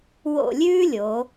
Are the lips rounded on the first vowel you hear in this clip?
yes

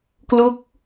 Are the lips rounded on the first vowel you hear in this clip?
yes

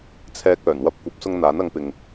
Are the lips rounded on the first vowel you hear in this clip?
no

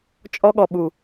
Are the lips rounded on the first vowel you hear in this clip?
yes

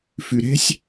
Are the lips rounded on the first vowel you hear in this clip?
yes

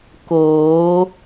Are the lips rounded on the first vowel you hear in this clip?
yes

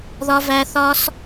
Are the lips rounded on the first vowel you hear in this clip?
yes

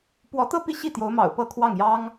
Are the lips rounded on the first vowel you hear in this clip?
yes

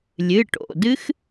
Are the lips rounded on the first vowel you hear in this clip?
no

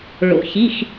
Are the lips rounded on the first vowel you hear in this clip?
yes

